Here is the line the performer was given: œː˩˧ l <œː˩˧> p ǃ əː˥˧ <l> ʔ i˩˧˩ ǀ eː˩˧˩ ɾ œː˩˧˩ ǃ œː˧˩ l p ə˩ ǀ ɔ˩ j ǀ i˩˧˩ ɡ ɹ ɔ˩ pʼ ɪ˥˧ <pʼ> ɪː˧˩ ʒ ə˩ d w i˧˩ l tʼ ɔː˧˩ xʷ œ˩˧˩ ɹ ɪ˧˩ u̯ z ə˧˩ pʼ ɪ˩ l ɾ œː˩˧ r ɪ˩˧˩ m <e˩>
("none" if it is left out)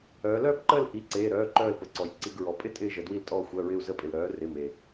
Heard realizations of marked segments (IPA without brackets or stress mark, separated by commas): œː˥˧, l, tʼ, e˩